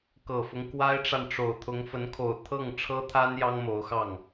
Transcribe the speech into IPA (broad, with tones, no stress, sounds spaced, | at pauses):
k ɤ˨˩ f ʊ˦ ŋ k w a˥ ɪ̯ ʈ͡ʂ a˨ n ʈ͡ʂ o˨˩ ʊ̯ t̪ʰ ʊ˧˥ ŋ f ə˧˥ n kʰ o˨˩ ʊ̯ t̪ʰ ɤ˥˩ ŋ ʈ͡ʂʰ ɤ˥ t̪ʰ a˥ n j ɑ˥ ŋ m o˧˥ ʊ̯ x ɑ˥˩ ŋ